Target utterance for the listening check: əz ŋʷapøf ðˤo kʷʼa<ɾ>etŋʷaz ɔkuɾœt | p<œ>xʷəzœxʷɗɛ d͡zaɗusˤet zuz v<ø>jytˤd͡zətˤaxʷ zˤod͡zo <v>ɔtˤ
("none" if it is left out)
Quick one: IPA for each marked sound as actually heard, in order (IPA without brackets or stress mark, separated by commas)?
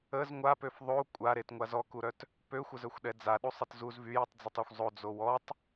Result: ɾ, ø, y, w